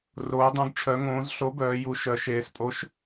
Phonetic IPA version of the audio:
r oː˩˧ dˤ ũ˩˧ ɡ ʈ͡ʂʰ œ˩˧ ŋ õː˩˧ z ɬ o˨˥ b œː˩˧ j u˩˧ ʃ œ˩˧ ʃ eː˩˧ s pʼ o˨˥ ʃ

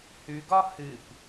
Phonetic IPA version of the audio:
h ʉ ɡ ɒ h ɨ p

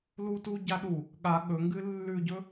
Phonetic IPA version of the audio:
l u t u ɟ a ɗ u | ɠ a ɠ ɵ ŋ ɡ ɨ lː ʉ ɟ ɵ

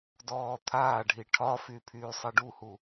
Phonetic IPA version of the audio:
d ɔː t̪ʰ aː ɖʱ i ʈʰ ɒ f y pʰ yː sˤ ɛ ɖ u h u

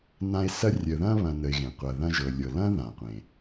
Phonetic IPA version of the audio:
n ã˦ e̯ s ɐ˥ rʲ ə˨ ð ɐ̃˦ β ɐ̃˨ n ə˨ e̯ ɣ ẽ˩ qʷ ɐ˨ ð ɐ̃˦ ʒ ɤ˨ lʲ ɤ˨ l ɐ̃˥ ð ã˩ qʷ ẽ˩

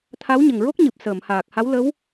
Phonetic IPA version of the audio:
t̪ʰ a˧˥ w ɲ ə˨˩ ŋ ɹ o˦˥ k̚ ɲ ɨ˨˩ p̚ s əː˨˩˨ m h aː˨˩ k̚ h a˧˥ w l ə˧˥ w

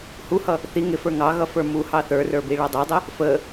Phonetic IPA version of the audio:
h u h ʌ | θ i ŋ ɪ f ə˞ ŋ ɑ ɣ ʌ f ə˞ m u h ɑ θ ə˞ r ə˞ b i ɭ ʌ dˤ i dˤ ɪ | f ə

